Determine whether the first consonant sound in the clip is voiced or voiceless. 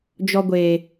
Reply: voiced